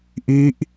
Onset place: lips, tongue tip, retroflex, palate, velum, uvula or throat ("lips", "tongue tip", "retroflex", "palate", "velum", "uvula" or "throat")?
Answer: throat